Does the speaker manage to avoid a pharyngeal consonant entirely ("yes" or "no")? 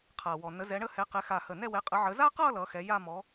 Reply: no